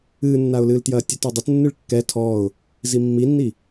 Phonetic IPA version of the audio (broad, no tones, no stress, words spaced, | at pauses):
ɨːnːaʊ̯lɨːltjɐː tʲɛtɔdˤɘt nːɨɭkːɛ tʰɔːʊ̯ | zimːinːi